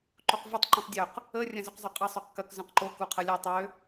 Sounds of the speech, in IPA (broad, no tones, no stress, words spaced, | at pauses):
ǃoqvɐtˤ ǃũtˤdʲøq | ə rʲɐ̃zʏq zˤʊqʼə sˤøqkɐk zœ̃qǃo kuqʰɐlʲœ tˤø